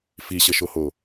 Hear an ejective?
no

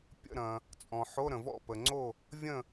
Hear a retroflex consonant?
no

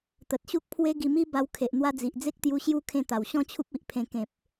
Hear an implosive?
no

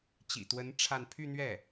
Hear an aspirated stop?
yes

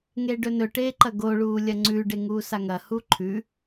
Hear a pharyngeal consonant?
no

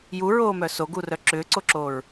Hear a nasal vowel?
no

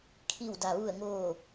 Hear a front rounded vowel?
no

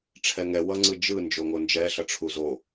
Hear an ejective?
no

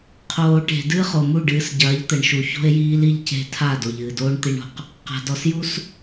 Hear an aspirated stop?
yes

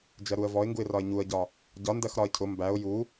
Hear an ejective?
no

